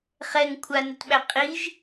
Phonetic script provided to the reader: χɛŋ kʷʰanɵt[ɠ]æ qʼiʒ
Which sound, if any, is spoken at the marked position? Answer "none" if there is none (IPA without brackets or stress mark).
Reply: ɓ